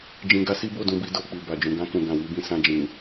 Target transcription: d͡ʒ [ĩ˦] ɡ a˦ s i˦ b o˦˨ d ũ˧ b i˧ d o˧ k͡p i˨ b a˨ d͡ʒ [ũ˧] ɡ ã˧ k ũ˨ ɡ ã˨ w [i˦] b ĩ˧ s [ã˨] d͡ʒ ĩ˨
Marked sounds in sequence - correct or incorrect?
incorrect: ĩ˧, incorrect: ũ˨, incorrect: i˧, incorrect: ã˧

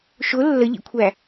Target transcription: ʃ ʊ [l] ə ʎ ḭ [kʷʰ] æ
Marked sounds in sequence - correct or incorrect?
incorrect: lː, correct

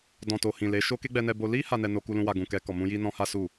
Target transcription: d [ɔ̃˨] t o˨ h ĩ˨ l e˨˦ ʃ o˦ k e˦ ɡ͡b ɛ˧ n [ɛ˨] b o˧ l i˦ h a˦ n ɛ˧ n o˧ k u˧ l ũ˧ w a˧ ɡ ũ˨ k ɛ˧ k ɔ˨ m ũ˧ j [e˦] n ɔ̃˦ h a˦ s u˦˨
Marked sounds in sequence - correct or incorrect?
correct, incorrect: ɛ˧, incorrect: i˦

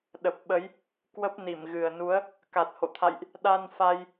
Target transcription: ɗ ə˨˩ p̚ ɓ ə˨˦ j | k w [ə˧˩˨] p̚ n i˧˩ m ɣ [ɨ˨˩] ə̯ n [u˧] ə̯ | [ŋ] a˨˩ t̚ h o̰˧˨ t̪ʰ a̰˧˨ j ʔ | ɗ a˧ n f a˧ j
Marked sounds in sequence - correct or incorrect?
incorrect: ə˦˥, correct, incorrect: u˨˦, incorrect: k

